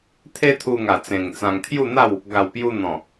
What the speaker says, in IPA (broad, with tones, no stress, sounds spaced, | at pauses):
t̪ʰ e˦ t̪ʰ u˧ ŋ a˨˩ t͡s ẽ˨˩ ŋ t͡s ã˧ ŋ t̪ʰ j u˥˧ n̪ a˥˧ w | ɡ a˨˩ w p j u˧ n̪ ɔ̃˨˩